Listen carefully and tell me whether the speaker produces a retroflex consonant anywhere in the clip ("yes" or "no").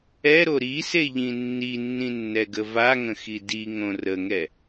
no